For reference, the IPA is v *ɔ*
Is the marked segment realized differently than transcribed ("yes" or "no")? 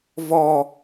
no